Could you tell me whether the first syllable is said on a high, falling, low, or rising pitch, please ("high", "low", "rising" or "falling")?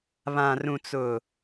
low